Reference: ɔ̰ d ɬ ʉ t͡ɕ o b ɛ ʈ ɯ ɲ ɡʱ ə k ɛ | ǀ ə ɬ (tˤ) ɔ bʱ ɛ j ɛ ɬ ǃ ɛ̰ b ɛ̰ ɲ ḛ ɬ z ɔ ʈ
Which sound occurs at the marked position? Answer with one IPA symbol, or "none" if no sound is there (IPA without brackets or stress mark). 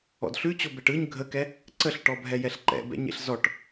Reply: ʈ